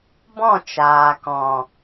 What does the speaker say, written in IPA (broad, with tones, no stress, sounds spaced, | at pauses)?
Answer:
b ɔ̃˦˨ t͡ʃ aː˨ k ɔ̃˨